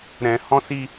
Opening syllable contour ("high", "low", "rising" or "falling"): low